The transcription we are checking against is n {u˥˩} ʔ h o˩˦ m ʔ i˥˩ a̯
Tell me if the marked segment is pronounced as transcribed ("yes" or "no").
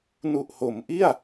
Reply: no